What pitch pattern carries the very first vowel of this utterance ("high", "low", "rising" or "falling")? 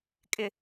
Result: low